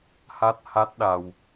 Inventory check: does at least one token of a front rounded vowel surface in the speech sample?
no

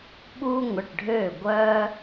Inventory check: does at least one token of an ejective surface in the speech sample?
no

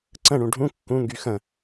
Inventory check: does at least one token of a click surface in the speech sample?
yes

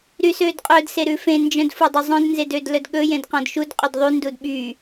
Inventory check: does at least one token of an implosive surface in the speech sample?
yes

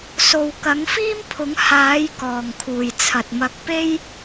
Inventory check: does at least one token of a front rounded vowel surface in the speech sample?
no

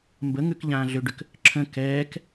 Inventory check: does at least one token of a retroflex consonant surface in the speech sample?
yes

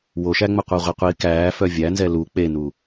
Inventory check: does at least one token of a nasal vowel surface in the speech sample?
no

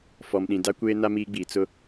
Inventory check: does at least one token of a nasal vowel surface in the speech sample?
yes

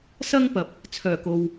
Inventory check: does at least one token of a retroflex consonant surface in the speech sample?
no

